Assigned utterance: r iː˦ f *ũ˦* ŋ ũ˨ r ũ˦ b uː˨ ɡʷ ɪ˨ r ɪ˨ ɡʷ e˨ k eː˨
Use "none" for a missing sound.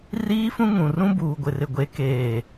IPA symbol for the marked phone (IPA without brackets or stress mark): ũ˦